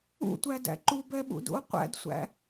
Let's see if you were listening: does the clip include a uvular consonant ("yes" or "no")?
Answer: yes